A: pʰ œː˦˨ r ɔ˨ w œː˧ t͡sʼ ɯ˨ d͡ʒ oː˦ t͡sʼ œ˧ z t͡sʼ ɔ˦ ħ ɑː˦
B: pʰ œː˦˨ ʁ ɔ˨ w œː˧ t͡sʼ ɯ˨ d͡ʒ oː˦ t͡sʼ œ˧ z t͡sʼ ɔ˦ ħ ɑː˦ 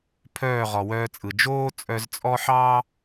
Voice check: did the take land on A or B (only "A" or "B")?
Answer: B